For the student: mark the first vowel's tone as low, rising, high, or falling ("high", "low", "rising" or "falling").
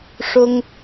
high